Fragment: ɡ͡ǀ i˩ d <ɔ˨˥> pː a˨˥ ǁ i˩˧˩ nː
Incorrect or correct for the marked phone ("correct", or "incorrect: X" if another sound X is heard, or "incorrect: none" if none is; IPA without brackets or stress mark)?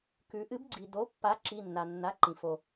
incorrect: o˨˥